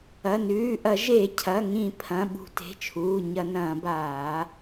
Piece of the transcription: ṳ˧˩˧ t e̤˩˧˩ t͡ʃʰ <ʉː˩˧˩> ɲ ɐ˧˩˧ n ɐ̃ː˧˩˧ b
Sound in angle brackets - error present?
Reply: yes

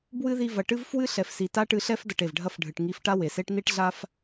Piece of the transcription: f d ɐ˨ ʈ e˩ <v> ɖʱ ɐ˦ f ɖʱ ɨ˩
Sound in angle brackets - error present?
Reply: no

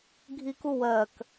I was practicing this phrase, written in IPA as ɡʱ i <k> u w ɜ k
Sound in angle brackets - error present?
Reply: no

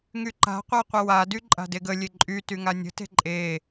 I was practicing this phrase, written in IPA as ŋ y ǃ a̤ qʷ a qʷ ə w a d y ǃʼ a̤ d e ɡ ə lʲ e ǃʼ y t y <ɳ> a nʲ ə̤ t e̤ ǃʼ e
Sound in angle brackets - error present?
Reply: yes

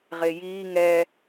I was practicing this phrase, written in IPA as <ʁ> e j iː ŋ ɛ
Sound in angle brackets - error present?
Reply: no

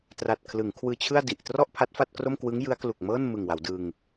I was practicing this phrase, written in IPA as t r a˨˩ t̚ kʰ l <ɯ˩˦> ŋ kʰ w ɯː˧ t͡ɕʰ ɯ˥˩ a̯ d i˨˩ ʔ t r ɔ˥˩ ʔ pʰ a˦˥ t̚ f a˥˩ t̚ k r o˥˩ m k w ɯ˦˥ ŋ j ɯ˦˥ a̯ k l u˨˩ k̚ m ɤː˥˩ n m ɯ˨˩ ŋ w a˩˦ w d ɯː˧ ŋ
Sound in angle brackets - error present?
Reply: no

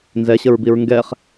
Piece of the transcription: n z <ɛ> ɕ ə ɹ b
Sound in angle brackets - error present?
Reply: no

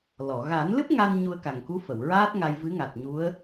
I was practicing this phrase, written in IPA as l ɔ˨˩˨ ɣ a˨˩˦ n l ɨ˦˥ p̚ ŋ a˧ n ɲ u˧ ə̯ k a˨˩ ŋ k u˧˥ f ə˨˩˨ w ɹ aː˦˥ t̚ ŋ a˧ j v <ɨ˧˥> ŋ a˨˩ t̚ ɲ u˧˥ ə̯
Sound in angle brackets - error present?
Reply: no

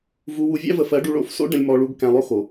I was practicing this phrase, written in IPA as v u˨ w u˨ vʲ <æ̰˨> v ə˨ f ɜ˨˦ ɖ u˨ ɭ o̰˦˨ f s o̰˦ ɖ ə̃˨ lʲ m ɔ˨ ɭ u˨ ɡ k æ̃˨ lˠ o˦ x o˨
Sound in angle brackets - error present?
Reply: yes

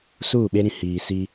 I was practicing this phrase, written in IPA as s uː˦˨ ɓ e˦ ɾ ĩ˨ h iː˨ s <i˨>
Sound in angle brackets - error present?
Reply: yes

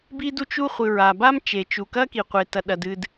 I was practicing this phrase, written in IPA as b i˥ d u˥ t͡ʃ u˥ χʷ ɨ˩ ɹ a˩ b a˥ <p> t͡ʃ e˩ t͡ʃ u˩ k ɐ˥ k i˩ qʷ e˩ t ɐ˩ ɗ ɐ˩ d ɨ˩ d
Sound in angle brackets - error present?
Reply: yes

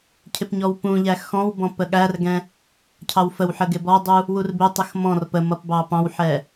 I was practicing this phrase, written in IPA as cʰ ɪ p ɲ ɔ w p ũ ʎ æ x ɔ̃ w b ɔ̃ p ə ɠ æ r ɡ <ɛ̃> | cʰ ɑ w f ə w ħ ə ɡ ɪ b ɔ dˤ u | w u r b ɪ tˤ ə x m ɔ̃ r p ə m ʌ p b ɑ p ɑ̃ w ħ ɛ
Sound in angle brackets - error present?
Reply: no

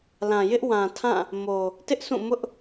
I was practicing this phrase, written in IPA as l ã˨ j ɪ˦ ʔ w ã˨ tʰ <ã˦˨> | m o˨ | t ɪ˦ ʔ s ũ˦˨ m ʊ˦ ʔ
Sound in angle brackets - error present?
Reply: no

